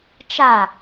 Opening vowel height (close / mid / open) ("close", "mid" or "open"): open